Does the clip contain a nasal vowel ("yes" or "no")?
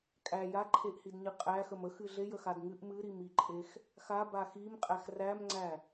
no